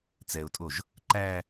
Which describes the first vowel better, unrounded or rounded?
unrounded